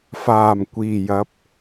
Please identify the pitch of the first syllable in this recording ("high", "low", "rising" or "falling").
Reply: low